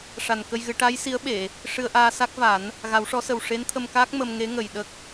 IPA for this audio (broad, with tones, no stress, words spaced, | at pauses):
ʂa˨˩nkə˧jɣɨ˨˩˦ ʈa˧˥jsi˧˥ə̯ɓe˨˩˨ | ʂɨ˧ə̯ʔaː˧ sa˦˥k̚va˨˩˦n | ɣa˨˩˦wʂɔ˧˥sə˨˩w ʂe˧˥nt̪ʰə˧m kaː˦˥k̚mə˧m ŋe˧˥ŋə˨˩j ɗə˦˥k̚